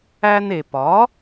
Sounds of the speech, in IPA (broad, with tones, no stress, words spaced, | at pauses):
æ˧ne˩pɒ˩˥